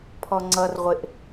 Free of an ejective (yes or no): yes